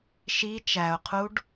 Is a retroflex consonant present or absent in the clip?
present